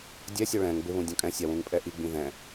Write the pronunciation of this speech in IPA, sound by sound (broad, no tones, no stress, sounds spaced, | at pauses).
dʲ ɛ sʲ o ɭ ɛ̃ ŋ b ɪ β ũ dʲ ɔ̃ kʼ ɛ̃ sʲ a w ũ ŋ pʼ ɛ ʔ i ɡ͡b ĩ ð ɛ̃